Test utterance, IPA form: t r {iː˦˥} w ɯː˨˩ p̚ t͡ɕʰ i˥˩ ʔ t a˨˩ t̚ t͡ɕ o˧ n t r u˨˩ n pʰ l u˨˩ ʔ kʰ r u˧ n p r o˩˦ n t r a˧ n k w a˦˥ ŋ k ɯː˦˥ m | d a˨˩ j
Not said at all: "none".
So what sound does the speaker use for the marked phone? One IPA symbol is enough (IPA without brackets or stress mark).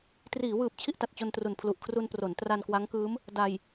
iː˩˦